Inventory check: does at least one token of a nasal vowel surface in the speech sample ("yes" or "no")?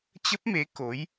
no